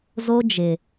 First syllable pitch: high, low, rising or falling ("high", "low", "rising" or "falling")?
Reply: high